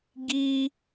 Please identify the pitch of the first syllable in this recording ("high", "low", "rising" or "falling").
high